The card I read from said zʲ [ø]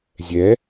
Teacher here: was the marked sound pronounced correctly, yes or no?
no